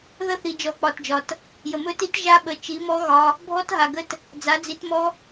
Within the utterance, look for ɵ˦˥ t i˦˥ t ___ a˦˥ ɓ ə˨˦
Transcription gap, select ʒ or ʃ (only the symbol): ʒ